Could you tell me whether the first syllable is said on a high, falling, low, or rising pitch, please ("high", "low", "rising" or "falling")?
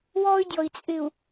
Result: high